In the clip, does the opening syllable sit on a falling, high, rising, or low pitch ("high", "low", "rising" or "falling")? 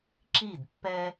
falling